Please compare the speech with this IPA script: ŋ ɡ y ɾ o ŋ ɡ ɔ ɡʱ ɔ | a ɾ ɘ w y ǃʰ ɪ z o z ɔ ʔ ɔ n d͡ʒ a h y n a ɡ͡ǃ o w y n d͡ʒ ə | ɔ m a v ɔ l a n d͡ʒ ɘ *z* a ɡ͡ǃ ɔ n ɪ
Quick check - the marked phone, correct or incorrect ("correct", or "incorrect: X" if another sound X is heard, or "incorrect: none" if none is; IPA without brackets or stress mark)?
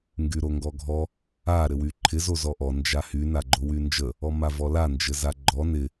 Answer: correct